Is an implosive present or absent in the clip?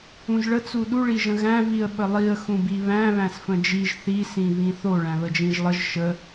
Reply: present